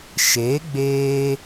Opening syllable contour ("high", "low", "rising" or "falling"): rising